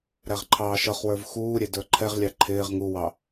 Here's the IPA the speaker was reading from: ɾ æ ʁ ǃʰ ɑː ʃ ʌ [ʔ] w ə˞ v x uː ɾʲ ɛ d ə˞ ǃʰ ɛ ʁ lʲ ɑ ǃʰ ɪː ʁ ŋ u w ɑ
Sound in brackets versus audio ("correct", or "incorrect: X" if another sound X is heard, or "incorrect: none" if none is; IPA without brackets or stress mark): incorrect: χ